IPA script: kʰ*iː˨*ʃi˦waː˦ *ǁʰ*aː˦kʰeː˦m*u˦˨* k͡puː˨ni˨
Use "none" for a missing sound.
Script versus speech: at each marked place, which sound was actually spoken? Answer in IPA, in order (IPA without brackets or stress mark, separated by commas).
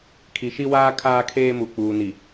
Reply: i˨, kʰ, u˨